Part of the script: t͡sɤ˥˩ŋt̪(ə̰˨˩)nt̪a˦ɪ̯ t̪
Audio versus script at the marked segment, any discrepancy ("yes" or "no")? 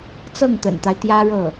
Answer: no